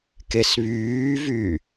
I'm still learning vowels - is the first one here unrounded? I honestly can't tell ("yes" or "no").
yes